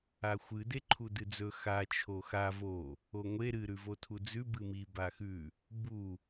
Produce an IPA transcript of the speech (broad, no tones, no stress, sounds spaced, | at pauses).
a xʷ ɨ d e ǃʰ u d ɨ d͡z ɵ x a t͡ʃʰ o x a v o | o ŋʷ e ɾ ɨ ɾ ʉ v o tʰ u d͡z ʉ b ɨ m i b a x ʉ | b u